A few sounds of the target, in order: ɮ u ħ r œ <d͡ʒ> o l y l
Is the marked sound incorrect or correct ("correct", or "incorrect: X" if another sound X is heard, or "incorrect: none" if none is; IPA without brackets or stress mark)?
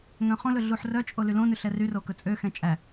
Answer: incorrect: t͡ʃʼ